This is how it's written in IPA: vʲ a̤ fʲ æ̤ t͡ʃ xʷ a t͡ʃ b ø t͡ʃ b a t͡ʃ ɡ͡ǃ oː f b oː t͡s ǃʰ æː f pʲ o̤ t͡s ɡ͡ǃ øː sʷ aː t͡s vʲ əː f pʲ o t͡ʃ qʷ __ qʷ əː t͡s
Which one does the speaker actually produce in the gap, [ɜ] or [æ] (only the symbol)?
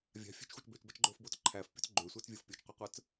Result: æ